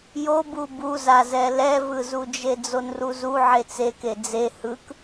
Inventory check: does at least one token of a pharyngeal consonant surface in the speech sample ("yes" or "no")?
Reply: yes